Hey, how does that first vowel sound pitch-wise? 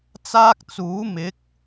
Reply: high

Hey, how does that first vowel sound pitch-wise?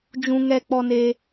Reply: high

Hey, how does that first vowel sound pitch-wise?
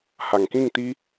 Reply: low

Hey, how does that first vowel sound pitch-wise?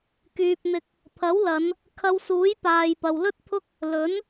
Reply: low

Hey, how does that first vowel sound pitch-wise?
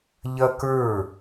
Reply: high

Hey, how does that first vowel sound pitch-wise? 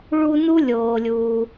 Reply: high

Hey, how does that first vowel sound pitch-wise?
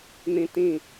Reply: high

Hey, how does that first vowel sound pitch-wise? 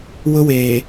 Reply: high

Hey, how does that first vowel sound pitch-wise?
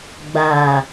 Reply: low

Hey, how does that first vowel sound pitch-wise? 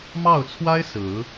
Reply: falling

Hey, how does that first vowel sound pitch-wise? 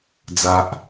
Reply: high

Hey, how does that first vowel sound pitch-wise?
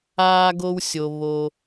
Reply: high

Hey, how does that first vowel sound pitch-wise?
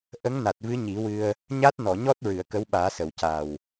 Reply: rising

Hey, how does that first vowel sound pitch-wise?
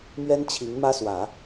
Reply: high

